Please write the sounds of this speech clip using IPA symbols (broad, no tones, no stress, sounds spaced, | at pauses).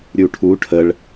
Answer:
ɾʲ u ʈʰ u ʈʰ ə ɭ